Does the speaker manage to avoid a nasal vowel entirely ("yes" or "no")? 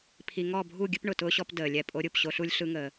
yes